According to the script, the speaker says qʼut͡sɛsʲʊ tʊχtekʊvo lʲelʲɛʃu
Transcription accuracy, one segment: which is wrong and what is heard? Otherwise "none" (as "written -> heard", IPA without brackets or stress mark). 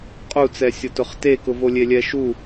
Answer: none